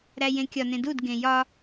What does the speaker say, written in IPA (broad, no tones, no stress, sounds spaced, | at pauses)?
ɾ æ j ẽ kʲ ɒ n ẽ d u d ɡ ẽ j ɒ